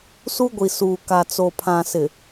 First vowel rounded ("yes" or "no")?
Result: yes